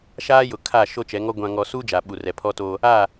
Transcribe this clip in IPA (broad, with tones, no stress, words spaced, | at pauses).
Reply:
ʃaː˦jʊ˨kʰa˦˨ ʃo˦t͡ʃɛ˨˦ŋɔ˦ ɡʷã˨ŋɔ˨ suː˦ d͡ʒa˨ ɓu˨rɛ˨pʰɔ˦to˦ | a˦˨